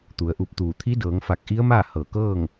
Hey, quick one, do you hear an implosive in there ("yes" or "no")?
no